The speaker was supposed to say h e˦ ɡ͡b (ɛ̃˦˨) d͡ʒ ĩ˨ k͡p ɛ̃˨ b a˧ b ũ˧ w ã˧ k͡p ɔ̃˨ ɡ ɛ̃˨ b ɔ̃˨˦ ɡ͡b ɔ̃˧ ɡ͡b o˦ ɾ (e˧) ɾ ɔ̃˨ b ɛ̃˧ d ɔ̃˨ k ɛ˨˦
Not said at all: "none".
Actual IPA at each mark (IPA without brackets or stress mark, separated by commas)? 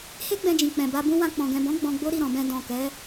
ɛ̃˧, i˧